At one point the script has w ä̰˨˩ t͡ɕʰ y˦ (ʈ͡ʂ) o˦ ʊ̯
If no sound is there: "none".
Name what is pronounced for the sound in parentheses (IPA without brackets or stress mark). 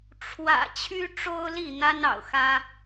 ʈ͡ʂ